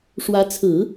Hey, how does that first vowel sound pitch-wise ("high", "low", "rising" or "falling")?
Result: rising